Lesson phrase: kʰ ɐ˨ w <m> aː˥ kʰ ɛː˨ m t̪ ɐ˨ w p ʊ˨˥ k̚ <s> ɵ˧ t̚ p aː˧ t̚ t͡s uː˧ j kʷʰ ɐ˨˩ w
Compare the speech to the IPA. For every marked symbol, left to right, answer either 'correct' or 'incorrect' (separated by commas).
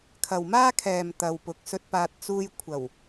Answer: correct, correct